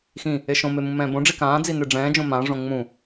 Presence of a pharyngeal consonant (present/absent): absent